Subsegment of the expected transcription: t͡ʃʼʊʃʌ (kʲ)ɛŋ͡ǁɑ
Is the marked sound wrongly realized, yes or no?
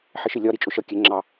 no